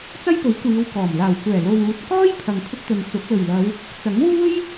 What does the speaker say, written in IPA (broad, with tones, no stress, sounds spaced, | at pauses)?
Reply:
t͡s ɐ˥ j p ɵ˨˥ ɥ kʷ iː˨˧ w k ɔː˨˩ m l aː˨˩ w kʷ ɛː˨˩ l o˨ w uː˨ t̚ k ɔː˥ j pʰ ɐ˨ ŋ kʰ ʊ˧ k̚ t̪ ɵ˨ n t͡s ʊ˨˥ k̚ l ɵ˨˩ ɥ l ɐ˨˧ w | t͡s ɐ˨˥ ŋ w uː˥ j